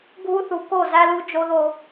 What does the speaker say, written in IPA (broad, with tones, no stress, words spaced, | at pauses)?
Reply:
ɡʱu˦θu˨ ko˦˨zæ˦lu˦ d͡ʒo˦ðo˦